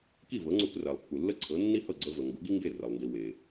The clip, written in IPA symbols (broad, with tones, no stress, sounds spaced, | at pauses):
k i˥˩ v ɤ˩˥ ŋ͡ǀ u˧ k r ɜ˩ lˠ pː u˩ lː ə˥˩ ǀʰ ɤ˩˥ nː i˥ h ɤ˥˩ ɡ͡ǀ ɤ˧ v ə˩ ŋ ɡ u˩˥ ɡ i˥ ŋ ɡ e˥˩ r ə˩ lˠ n d i˩ w e˩